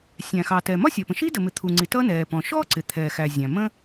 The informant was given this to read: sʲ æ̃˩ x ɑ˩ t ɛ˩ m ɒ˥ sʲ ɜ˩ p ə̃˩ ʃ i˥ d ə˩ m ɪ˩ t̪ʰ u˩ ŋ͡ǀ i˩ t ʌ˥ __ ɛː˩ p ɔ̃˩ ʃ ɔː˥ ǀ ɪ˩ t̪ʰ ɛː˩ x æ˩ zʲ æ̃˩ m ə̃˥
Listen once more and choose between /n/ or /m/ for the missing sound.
n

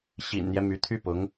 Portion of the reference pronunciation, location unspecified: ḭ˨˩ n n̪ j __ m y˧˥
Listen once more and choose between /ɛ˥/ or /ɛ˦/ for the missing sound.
ɛ˦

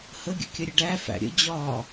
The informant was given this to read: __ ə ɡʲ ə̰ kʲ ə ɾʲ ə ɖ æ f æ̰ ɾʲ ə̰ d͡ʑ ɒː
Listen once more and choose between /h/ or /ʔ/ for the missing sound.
h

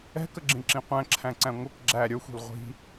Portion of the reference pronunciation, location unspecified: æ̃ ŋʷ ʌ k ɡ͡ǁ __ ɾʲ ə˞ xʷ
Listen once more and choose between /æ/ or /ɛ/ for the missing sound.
æ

